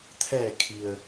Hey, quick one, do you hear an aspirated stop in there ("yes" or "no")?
yes